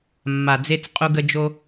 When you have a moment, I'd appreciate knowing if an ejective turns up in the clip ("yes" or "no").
yes